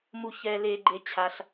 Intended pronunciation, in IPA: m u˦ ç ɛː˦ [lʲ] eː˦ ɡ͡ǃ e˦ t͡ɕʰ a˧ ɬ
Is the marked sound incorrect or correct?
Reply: incorrect